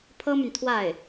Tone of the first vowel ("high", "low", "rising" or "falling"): high